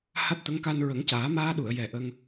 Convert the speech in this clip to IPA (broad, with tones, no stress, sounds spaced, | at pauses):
h a˦˥ t̚ t̪ ə˧˥ ŋ k a˧ n ɹ ə˨˩˦ ŋ c aː˨˩˦ m aː˧ ɗ u˨˩˨ ə̯ j ɛ˨˩ ʔ ə˧ ŋ